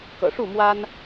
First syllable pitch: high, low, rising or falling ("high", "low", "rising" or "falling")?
low